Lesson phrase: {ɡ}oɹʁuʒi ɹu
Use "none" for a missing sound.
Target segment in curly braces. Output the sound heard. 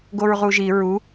ɡ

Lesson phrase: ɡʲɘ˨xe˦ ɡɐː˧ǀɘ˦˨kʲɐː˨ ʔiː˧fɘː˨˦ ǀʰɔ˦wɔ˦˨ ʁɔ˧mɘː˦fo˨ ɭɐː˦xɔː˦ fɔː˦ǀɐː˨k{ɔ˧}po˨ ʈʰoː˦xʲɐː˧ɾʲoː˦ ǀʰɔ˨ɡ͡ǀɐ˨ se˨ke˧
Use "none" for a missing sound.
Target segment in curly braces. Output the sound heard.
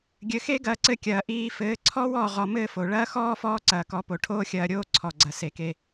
ɔ˨˦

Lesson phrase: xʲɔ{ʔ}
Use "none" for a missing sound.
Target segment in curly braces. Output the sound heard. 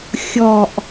ʔ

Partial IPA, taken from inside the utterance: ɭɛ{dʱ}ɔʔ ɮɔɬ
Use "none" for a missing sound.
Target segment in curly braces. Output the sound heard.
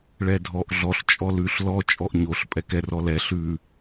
dʱ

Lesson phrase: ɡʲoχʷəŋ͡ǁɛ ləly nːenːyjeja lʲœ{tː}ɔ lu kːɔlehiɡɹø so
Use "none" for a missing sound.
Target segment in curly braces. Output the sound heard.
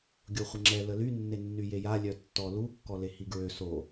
tː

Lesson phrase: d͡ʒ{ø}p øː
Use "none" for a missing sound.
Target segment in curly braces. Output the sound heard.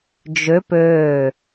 ø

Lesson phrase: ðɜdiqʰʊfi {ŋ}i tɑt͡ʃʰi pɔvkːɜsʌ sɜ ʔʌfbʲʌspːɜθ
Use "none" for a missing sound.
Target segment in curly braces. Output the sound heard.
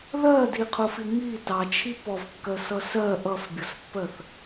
ŋ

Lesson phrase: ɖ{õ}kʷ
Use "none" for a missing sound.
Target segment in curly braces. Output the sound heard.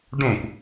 õ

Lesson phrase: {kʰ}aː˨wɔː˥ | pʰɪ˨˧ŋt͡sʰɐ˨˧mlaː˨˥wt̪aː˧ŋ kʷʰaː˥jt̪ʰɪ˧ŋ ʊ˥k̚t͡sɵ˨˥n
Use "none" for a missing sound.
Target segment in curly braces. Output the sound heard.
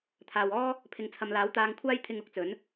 t̪ʰ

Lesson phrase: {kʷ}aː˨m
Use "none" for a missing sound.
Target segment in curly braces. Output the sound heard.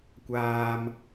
kʷ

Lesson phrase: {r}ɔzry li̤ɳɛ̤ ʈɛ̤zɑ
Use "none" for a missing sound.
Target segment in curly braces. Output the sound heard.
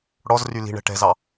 ɽ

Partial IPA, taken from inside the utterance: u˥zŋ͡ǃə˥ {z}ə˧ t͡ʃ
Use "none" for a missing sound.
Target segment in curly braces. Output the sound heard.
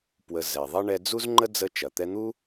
d͡z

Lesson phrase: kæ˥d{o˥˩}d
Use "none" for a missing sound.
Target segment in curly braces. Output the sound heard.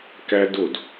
o˥˩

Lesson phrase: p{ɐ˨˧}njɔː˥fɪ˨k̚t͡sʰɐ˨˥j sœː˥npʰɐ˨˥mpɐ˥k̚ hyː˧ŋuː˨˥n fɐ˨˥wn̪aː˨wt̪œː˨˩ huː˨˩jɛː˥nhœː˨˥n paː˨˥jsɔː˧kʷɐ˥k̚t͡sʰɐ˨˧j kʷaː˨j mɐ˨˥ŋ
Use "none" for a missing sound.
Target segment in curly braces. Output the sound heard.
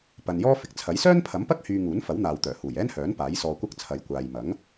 ɐ˨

